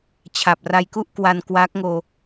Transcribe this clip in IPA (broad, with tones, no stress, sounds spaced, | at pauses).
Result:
t͡ɕʰ a˨˩ p̚ r a˧ j k u˥˩ ʔ k w a˧ n k w aː˦˥ k̚ ŋ oː˧